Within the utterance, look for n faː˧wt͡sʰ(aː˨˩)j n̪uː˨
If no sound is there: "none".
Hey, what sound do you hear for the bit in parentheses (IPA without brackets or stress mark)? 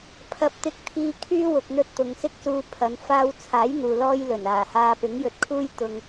aː˨˥